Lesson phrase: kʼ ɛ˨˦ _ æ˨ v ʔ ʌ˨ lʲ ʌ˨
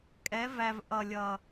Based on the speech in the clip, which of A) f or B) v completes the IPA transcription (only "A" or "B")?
B